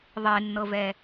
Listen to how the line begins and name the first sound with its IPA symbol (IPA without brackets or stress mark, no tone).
ðˤ